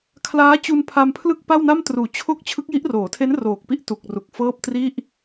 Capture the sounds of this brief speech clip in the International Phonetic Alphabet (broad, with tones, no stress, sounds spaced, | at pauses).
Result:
kʰ l aː˦˥ t͡ɕ u˧ n pʰ a˧ m pʰ l ɯ˥˩ k̚ p a˥˩ w n a˥˩ m t r uː˩˦ t͡ɕʰ o˥˩ k̚ t͡ɕʰ ɯ˦˥ k̚ j i˦˥ ʔ r oː˩˦ tʰ e˦˥ n r oː˨˩ k̚ p i˥˩ ʔ t u˨˩ k̚ r u˨˩ k̚ f ɤː˥˩ p̚ t r i˥˩ ʔ